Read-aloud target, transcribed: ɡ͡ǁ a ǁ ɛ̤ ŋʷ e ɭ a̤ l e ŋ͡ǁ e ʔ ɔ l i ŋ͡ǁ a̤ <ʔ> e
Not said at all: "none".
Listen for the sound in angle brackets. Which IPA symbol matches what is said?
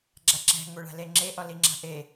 ʔ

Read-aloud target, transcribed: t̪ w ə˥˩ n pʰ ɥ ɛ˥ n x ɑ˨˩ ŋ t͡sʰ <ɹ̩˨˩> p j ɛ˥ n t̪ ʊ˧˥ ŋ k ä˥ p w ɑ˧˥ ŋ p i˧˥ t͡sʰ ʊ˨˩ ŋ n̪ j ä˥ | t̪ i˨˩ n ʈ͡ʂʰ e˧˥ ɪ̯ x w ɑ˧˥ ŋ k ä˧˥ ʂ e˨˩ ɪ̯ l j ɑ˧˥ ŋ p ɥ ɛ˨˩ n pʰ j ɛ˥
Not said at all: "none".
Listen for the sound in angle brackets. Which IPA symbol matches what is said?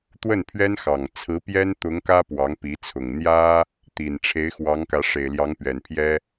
ɹ̩˧˥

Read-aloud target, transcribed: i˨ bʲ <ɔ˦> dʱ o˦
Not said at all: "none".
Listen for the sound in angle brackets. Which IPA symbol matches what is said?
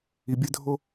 ə˦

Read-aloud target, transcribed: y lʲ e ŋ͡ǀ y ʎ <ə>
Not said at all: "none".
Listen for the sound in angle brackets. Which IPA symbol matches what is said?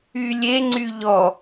ɔ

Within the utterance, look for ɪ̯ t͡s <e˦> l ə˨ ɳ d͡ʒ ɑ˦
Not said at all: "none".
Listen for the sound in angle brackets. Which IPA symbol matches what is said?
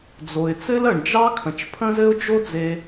ɘ˦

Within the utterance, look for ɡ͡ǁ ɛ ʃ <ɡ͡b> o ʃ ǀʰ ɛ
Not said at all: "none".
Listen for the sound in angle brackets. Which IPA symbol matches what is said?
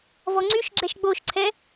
ɡ͡b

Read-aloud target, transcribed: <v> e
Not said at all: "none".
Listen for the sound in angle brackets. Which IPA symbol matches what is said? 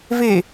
v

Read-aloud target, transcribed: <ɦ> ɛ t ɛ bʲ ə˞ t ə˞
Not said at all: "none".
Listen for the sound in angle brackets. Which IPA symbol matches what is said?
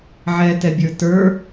ʕ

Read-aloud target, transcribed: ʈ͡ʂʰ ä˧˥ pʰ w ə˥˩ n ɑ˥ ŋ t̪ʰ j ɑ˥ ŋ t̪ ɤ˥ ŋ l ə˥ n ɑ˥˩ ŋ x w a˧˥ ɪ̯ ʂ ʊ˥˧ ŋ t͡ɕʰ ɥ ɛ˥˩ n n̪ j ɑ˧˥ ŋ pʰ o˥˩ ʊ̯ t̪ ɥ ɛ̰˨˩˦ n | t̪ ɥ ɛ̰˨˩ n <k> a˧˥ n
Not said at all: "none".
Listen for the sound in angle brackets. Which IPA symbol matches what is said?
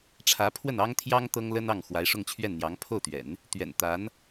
t̪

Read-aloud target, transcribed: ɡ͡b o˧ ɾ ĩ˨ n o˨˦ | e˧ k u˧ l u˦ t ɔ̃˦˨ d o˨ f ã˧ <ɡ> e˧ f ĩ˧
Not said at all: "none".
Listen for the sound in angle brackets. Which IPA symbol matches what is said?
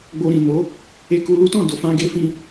ɡ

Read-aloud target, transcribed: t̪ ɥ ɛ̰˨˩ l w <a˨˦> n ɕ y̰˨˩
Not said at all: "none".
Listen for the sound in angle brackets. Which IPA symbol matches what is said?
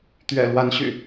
a˨˦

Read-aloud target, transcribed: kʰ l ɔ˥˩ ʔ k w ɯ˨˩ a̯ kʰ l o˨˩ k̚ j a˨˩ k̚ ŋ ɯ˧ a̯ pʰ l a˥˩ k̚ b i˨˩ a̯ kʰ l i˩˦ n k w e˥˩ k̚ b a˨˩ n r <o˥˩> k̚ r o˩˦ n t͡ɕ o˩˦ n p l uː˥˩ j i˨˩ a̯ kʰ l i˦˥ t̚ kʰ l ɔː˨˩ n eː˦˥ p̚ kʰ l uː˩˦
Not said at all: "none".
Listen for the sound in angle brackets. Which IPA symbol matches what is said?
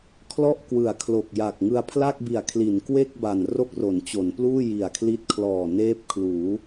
o˥˩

